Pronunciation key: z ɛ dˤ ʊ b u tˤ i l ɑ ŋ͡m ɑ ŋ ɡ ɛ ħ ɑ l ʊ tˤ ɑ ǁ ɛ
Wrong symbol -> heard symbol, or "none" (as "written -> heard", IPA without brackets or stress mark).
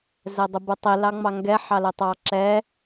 none